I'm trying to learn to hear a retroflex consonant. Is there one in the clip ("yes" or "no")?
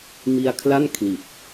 no